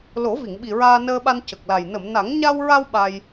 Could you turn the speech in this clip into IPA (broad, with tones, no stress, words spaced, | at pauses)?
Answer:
lo˨˩˦vi˨˩˨ŋɓi˨˩ ɹaː˧nəː˧ɓa˧n cə˨˩k̚la˨˩j nə˨˩˨mna˨˩˦ŋ ɲa˧wɹa˧w ɓa˧j